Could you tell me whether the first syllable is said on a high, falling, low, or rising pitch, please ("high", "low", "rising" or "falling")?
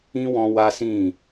high